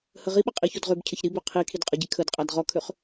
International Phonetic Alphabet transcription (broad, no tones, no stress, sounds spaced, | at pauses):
h ə ʁ i ɓ ə qʼ i ç o d ʁ ø b cʰ ə ç ɾ i b ø qʰ i kʰ i d qʼ ə ɟ i kʰ ə d qʼ a d ʁ ɔ kʰ ø χ